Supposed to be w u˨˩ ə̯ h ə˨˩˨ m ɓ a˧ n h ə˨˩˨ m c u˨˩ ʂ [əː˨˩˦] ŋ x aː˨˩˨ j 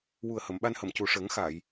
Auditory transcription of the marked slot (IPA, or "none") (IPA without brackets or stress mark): əː˨˩˦